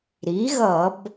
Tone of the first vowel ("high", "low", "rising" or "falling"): rising